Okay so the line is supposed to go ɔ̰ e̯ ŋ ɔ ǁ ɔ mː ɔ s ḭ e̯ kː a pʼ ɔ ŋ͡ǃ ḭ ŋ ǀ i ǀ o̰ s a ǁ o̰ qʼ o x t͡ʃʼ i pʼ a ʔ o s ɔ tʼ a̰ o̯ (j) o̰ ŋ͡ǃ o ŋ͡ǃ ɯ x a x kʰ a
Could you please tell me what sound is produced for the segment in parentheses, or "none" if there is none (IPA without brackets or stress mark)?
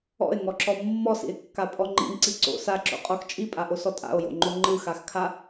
j